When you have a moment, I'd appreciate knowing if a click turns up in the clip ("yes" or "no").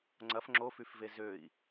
yes